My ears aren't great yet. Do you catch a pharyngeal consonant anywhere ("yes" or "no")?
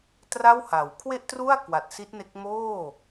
no